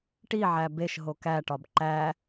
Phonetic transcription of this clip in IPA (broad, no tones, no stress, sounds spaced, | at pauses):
ʈ i ʕ æ b e ʃ ɦ o k æ ʈ ɒ b ǃ æ